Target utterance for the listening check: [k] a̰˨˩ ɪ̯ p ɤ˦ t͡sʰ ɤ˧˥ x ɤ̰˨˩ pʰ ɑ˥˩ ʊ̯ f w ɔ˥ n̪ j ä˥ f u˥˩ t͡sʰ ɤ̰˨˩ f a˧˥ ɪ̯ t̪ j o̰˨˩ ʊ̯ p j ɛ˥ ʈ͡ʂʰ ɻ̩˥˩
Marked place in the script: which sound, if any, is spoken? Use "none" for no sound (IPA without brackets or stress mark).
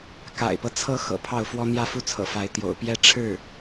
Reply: k